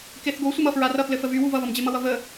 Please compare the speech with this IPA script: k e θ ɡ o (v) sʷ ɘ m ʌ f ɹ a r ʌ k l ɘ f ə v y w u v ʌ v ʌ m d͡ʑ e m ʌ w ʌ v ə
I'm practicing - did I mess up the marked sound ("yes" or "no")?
yes